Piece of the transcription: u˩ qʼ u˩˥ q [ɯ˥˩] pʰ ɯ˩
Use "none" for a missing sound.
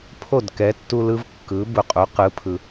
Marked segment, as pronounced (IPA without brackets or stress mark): ɯ˩˥